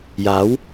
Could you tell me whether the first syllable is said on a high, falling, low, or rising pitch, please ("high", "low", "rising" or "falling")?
rising